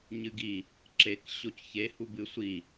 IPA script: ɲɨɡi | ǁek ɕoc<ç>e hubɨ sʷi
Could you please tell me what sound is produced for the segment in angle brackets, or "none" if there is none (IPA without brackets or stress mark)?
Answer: ç